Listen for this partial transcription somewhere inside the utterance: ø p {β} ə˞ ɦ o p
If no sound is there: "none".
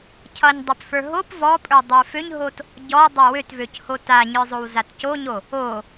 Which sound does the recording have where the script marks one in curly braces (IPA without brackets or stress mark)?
f